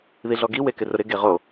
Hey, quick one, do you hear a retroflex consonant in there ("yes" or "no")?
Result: no